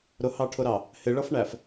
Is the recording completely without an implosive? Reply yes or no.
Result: yes